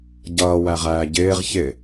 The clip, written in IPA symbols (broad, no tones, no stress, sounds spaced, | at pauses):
ɟ ʌː w æ ʁ æː ɟ ɪː ʁ ç ɪ